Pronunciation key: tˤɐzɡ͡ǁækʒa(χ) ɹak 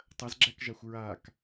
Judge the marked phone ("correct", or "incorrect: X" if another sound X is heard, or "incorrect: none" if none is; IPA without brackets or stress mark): incorrect: xʷ